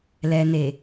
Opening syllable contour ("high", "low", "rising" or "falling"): low